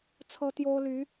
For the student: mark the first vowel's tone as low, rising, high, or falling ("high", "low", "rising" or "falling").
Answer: high